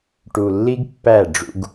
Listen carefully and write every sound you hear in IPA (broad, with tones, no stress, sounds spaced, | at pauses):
ʈ u˨ lː i˦ ɡ pː æ˦˨ ɖ͡ʐ ṵ˦ ɡ